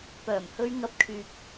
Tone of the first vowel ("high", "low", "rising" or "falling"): low